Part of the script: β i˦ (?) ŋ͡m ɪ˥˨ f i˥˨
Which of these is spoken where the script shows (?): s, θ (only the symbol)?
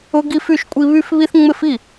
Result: θ